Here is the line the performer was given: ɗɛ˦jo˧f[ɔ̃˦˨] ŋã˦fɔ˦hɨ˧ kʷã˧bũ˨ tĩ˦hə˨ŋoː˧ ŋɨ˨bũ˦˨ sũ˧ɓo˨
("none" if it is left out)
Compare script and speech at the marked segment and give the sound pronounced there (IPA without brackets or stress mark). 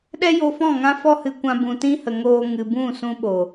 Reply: ɔ̃˦˨